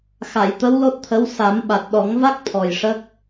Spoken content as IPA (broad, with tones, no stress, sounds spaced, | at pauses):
x a˨˩˨ j t̪ ə˧˥ w l o˦˥ t̚ t̪ʰ ə˧˥ w s a˨˩˦ m ɓ a˨˩ t̚ ɗ ɔ˨˩˦ ŋ v a˦˥ k̚ t̪ʰ ɔ˨˩ j ʂ ə˦˥ k̚